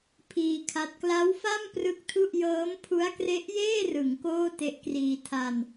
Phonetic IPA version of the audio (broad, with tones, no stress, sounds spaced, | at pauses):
pʰ iː˧ kʰ a˦˥ t̚ k l a˦˥ w f a˥˩ m p r ɯ˦˥ k̚ tʰ u˥˩ ʔ j ɤː˦˥ m pʰ u˦˥ a̯ k r e˦˥ ʔ j eː˥˩ r ɯ˩˦ ŋ k oː˥˩ t e˦˥ ʔ k r iː˧ tʰ a˧ n